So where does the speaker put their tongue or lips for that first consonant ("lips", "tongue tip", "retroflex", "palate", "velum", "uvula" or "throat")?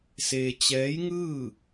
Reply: tongue tip